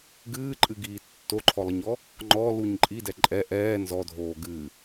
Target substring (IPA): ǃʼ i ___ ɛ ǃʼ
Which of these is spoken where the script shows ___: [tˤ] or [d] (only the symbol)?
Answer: d